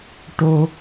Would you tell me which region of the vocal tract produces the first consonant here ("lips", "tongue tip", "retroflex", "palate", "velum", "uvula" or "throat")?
retroflex